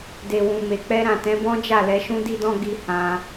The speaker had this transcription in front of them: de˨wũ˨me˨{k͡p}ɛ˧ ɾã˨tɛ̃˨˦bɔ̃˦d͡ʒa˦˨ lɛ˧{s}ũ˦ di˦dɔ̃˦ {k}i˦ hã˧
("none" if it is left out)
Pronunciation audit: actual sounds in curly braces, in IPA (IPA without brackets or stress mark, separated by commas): k͡p, ʃ, ɡ